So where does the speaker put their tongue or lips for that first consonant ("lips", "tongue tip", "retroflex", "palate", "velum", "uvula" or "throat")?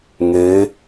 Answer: velum